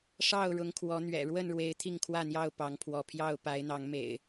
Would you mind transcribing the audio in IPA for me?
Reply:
ʂ ɑ˥˨ ʊ̯ ɻ ʊ˨˦ ŋ kʰ w ɔ˨˦ n̪ ɥ ɛ̰˨˩ ɻ w ə˥˨ n ɻ w e˨˦ ɪ̯ t̪ʰ i˥˨ ŋ kʰ w ä˥˨ n̪ j ɑ˥˨ ʊ̯ p ɑ˨˦ ŋ pʰ w ɔ˨˦ pʰ j ɑ˥˨ ʊ̯ p a˨˦ ɪ̯ n̪ ɑ˨˦ ŋ m ḛ˨˩ ɪ̯

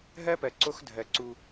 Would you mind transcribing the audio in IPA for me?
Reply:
ɦ ɜ˦ p ɜ˨ ǀ o˦ x dʱ ɜ˨ ǀ u˦

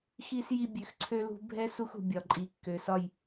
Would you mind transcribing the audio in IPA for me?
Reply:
x i˨ s j i˨ bʲ ø˨ x ǀʰ ø˦ l ṳ˦ bʱ ɛ˦ s u˦ x ṳ˨ bʲ ɒ˨ ǃʼ i˨ kː ø˨ s ɒ˦˨ j

